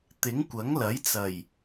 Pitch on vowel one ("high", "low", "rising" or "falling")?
rising